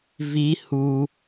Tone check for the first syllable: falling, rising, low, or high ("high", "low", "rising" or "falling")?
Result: high